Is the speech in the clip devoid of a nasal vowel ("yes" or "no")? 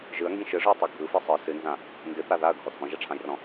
no